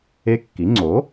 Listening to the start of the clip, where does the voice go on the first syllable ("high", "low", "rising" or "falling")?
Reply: rising